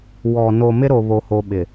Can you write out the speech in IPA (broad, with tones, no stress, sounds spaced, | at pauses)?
w ɔ˨ n o˨ m ɪ˦ ɾ o˨ β o˨ h o˨ ɓ ɪ˨